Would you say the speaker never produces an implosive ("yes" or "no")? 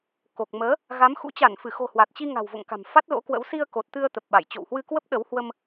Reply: no